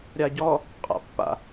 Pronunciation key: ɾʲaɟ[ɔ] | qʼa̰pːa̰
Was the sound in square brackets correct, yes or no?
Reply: yes